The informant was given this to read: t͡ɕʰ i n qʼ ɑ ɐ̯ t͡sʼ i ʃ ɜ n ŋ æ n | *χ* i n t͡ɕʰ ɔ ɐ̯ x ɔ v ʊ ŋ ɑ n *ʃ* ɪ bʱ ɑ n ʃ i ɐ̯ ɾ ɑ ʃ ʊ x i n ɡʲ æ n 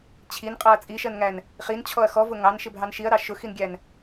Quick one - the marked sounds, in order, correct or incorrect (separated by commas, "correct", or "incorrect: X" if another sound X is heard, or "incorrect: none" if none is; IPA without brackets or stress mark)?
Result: correct, correct